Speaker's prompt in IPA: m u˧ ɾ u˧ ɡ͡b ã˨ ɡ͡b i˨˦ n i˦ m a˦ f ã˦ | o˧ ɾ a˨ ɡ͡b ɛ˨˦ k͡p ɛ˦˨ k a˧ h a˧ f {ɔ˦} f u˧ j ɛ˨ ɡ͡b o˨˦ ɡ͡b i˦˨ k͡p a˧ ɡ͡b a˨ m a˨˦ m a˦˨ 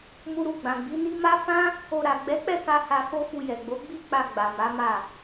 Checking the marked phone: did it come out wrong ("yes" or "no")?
yes